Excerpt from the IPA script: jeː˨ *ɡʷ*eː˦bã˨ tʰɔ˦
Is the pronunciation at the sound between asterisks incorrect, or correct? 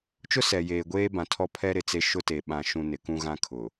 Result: correct